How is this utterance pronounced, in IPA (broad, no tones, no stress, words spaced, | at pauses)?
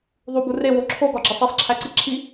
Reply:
ðˤubu rewo ǁʰoɡɒɡ͡ǁesˤ isˤǁʰæǀi ǁʰi